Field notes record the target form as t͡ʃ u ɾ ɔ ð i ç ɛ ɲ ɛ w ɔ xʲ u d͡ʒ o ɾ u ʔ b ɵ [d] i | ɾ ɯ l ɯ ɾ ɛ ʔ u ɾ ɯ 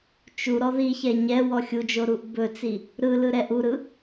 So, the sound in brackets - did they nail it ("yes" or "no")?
no